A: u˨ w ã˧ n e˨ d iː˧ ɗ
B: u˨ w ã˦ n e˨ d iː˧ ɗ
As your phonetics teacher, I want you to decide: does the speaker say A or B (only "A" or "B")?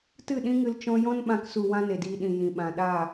B